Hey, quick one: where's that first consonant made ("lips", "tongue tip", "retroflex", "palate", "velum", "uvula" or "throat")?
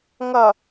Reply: velum